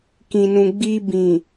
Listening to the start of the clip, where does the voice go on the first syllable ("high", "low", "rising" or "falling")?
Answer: low